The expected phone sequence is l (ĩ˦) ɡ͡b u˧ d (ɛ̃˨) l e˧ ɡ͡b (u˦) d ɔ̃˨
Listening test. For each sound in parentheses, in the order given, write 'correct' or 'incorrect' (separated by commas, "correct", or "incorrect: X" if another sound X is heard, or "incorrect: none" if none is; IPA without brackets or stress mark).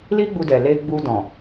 incorrect: i˦, incorrect: ɛ˨, incorrect: u˧